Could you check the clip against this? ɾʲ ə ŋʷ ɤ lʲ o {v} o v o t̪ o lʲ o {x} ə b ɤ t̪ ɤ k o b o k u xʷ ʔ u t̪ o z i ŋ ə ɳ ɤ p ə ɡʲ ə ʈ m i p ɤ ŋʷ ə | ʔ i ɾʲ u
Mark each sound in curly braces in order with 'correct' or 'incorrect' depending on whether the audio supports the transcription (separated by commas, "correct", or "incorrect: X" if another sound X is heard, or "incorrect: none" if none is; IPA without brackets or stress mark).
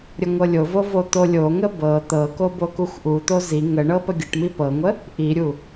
correct, incorrect: ŋ